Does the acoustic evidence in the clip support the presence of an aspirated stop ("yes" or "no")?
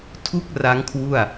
yes